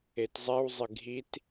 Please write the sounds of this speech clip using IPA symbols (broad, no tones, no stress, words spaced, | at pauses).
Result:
etzˤɛwzˤɪ ɡʱit